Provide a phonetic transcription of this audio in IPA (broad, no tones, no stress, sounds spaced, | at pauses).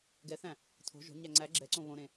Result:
ɡ ɛ θ æ̃ | tʰ o̤ ʒ o̤ ɲ æ ŋ͡ǀ æ ɡ͡ǁ ɛ ǀ õ β õ ɾ ẽ